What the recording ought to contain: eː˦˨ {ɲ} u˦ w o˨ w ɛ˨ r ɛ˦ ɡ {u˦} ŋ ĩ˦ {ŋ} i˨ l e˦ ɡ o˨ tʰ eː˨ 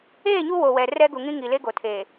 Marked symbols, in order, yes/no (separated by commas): yes, no, yes